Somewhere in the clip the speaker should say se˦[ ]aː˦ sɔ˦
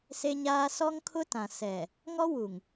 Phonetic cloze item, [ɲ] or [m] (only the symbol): ɲ